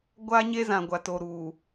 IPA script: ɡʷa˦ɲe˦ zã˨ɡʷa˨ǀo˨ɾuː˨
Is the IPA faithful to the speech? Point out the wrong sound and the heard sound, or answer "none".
ǀ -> t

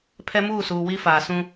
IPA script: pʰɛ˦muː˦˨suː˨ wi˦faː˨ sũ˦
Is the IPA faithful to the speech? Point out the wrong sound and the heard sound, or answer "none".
none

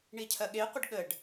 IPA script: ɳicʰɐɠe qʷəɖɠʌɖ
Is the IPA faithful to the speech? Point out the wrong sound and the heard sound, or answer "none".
ʌ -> ə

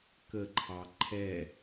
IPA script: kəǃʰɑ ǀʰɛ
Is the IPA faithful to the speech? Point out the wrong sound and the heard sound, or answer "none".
ǀʰ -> ǃʰ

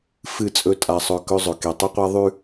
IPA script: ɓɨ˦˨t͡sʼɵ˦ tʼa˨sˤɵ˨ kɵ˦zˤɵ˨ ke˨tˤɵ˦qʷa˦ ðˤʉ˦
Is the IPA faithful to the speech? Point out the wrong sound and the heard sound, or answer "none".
ɓ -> f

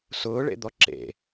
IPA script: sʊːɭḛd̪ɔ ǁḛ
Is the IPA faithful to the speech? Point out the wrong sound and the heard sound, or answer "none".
none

